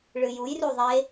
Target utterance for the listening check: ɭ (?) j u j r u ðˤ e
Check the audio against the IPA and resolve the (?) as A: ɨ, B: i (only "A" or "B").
A